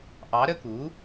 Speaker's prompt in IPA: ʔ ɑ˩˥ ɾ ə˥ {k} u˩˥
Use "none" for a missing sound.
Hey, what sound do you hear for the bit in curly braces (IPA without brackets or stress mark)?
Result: k